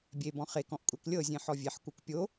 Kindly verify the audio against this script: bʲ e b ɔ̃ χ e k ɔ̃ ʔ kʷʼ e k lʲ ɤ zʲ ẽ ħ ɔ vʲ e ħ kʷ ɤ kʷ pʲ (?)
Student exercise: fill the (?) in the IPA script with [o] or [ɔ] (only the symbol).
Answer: o